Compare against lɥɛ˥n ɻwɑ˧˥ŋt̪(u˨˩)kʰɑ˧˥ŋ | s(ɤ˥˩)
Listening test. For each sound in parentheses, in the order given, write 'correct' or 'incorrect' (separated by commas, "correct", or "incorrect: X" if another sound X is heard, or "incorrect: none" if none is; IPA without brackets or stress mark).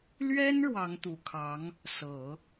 correct, incorrect: ɤ˨˩˦